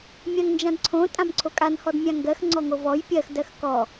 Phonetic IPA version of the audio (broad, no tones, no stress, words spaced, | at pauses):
mʲãŋnd͡ʒãdǀʰõ tʼãmǀʰokʼan hɔdmʲãŋɡɜx ŋ͡ǀɔŋovɔj pʲɜx dɜxkɔ